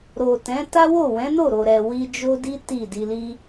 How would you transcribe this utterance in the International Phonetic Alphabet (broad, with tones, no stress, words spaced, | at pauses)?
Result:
ɾo˨tɛ̃˨˦ ta˦wo˦˨ wɛ̃˨˦no˦˨ɾo˨ ɾɛ˨wi˧d͡ʒo˦di˦ ti˦˨di˧li˦